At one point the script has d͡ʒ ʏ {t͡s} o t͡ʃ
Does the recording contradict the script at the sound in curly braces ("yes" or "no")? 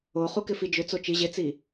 no